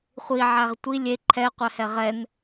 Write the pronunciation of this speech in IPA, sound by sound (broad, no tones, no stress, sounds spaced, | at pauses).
χʷ i ʕ æ ʁ tʷ i lʲ e ǃʰ ɛ qʷ ɛ h ɛ ʁ ɛ n